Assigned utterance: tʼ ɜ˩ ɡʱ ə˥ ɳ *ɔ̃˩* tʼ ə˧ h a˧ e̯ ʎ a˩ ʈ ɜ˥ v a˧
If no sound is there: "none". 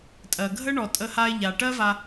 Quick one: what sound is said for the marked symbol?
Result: ɔ˩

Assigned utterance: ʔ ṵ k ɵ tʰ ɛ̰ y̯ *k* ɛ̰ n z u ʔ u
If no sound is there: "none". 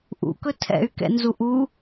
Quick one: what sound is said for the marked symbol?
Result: k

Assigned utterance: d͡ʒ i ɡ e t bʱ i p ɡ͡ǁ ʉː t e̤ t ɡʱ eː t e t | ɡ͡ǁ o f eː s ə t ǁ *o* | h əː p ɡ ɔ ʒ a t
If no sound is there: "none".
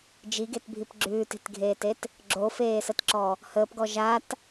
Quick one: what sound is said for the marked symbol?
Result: ɔ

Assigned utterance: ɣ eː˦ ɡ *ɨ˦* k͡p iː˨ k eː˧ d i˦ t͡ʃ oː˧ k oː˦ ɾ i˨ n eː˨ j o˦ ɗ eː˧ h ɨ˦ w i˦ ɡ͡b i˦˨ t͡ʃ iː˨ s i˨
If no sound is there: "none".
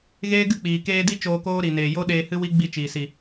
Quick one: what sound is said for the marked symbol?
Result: ɨ˦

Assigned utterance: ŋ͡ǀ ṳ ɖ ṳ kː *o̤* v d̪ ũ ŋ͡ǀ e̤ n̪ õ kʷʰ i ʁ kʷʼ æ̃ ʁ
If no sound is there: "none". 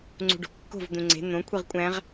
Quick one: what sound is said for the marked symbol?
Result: o̤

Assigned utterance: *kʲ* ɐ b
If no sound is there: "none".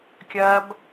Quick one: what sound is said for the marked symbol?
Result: kʲ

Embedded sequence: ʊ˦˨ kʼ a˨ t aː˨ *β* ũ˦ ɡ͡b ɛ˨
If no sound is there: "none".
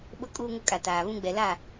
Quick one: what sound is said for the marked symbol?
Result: β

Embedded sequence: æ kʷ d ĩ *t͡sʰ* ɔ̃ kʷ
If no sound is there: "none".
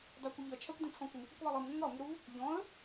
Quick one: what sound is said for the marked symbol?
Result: t͡sʰ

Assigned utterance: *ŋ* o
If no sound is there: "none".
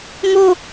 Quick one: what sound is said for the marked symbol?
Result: ŋ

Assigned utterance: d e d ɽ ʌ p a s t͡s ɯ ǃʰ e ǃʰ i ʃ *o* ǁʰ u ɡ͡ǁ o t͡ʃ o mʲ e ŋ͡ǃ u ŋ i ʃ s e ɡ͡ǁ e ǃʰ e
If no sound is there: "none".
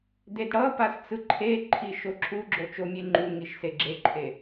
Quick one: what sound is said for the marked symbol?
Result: o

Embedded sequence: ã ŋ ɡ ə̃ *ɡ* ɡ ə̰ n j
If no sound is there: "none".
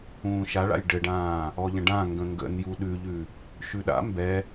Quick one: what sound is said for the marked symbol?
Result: ŋ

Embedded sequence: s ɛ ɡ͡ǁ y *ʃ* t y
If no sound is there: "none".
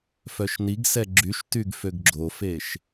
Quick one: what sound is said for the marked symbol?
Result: ʃ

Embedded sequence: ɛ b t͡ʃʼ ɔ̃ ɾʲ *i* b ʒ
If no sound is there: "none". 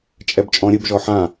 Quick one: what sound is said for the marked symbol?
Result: ɨ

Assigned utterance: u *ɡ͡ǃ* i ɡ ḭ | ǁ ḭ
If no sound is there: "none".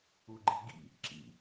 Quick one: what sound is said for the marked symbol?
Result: ɡ͡ǃ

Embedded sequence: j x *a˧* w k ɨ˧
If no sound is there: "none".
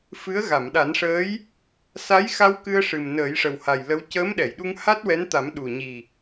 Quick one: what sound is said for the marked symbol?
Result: a˧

